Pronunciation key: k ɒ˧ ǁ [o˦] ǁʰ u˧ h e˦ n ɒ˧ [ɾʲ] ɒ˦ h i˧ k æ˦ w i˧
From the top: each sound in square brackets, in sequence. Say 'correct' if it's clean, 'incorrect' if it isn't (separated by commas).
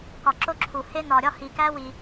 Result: correct, correct